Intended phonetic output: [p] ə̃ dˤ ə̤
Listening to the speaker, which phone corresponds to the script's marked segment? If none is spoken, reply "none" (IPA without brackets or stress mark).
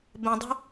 b